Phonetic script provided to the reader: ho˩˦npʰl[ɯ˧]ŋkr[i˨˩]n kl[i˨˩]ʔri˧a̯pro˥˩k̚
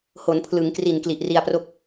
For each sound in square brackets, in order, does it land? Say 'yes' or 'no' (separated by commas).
no, yes, yes